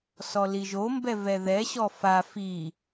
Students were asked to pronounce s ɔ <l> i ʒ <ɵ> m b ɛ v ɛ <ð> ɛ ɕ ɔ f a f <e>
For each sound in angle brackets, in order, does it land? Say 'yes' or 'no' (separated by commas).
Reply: yes, no, yes, no